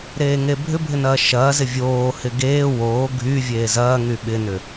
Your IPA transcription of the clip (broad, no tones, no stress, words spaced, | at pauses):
ɾeːŋebʱʏbʱɪ nɐːʃɐːzɪ vʲoːhɪ ɡeː woː ɡʱyvʲeː zɐːŋy ɓɪnʏ